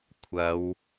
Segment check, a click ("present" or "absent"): absent